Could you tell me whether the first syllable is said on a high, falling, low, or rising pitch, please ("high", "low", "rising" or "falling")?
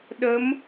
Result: rising